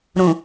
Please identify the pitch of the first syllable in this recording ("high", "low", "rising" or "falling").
low